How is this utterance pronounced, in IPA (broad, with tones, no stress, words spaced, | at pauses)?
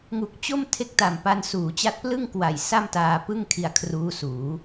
ŋu˨˩k̚t͡ɕo˥˩m tʰe˦˥k̚ta˨˩m pa˧nsuː˩˦t͡ɕa˦˥t̚plɯ˥˩ŋ kwa˨˩j sa˥˩mtaː˧pɯ˥˩ŋ kʰi˧a̯kʰruː˦˥suː˩˦